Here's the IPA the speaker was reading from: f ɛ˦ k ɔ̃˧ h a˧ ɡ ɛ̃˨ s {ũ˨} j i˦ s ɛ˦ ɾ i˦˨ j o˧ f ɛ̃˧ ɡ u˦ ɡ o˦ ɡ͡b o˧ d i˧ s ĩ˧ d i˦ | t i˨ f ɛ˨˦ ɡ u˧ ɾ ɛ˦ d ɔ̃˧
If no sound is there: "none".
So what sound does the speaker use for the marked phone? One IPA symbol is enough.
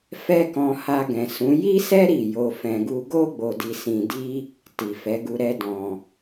ũ˨˦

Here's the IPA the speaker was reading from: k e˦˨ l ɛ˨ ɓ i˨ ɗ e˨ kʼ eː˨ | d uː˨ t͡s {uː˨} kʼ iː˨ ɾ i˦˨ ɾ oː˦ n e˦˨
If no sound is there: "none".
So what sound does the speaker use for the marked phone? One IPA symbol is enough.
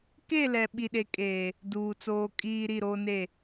oː˨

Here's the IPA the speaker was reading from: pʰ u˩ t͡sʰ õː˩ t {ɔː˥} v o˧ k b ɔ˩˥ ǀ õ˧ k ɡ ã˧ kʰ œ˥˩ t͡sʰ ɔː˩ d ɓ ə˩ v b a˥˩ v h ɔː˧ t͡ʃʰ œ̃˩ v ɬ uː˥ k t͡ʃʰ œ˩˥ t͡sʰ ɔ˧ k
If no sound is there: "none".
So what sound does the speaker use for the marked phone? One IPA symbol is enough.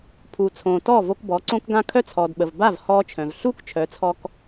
ɔː˥˩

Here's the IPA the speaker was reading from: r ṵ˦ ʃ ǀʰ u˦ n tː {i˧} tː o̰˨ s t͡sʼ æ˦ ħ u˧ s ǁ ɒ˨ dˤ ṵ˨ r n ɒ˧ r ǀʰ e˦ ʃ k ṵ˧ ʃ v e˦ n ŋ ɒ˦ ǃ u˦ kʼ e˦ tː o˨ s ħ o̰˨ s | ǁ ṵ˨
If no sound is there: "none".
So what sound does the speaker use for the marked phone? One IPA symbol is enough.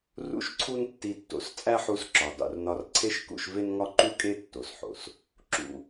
i˧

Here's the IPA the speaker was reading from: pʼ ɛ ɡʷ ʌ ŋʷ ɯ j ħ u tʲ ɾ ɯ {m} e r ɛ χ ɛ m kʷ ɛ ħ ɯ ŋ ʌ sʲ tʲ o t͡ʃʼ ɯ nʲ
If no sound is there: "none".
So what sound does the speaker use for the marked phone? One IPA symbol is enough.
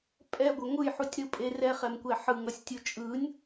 pʼ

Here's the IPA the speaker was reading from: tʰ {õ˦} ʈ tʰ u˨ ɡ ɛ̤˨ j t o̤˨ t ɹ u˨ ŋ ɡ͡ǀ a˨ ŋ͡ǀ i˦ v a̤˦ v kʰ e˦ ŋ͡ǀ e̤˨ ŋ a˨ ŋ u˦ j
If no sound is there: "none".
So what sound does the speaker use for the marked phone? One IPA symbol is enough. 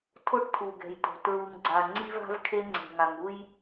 o˦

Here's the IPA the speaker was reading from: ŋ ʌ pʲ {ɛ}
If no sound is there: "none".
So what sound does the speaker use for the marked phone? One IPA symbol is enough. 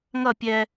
ɛ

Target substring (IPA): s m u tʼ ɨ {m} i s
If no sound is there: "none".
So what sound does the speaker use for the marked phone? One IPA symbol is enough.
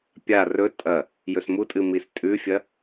m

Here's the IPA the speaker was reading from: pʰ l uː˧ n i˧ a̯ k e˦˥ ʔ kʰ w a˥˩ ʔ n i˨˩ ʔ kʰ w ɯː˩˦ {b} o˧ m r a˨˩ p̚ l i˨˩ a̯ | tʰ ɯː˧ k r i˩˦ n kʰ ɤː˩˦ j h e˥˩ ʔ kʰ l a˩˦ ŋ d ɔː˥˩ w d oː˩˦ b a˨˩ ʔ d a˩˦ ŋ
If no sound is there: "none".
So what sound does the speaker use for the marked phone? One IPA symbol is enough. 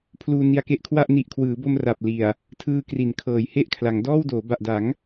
b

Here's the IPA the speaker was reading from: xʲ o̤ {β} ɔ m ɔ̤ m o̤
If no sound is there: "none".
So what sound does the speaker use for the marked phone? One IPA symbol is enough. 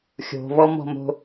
β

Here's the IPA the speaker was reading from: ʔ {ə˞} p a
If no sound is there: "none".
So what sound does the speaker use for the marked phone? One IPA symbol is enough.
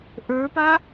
ə˞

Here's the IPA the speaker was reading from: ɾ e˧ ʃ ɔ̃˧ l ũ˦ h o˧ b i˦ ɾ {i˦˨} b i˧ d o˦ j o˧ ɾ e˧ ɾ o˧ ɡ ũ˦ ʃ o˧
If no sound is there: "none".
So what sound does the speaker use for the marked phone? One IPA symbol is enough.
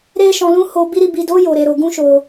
i˧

